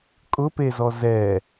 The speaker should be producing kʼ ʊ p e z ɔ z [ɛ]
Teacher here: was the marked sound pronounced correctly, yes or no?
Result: yes